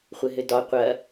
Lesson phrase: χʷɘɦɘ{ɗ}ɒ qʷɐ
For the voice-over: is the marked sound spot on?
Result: no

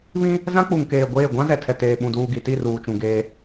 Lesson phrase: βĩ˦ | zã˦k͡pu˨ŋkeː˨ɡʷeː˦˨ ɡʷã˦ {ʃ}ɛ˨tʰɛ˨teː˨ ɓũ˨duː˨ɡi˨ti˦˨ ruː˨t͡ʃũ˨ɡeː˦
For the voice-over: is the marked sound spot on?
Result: no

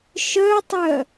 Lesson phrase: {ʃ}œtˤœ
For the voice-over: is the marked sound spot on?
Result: yes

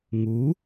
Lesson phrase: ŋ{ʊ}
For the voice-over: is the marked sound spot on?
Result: no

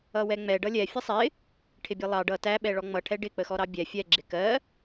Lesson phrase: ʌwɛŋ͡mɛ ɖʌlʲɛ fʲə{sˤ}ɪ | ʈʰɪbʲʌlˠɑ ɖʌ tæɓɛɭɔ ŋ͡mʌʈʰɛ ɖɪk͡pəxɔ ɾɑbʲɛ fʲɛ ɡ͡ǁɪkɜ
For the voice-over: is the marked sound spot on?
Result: yes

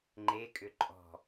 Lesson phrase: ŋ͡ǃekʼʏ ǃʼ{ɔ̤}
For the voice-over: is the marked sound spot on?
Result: yes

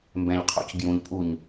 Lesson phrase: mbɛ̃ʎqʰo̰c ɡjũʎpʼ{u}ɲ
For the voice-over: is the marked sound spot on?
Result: yes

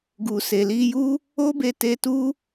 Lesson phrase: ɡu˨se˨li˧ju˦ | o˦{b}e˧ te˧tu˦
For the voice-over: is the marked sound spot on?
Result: yes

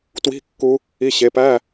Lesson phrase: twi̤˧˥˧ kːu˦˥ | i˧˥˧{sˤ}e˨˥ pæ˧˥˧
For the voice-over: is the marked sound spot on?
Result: no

